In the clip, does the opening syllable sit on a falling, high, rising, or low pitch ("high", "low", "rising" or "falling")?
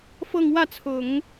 falling